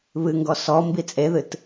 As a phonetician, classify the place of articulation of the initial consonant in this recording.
labial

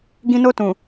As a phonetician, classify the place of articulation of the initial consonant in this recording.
velar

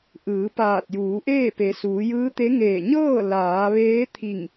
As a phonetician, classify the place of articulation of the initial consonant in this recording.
glottal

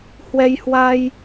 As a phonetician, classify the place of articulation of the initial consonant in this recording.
glottal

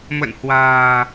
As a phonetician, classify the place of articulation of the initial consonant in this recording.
labial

